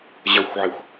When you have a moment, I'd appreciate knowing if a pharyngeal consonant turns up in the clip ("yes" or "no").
yes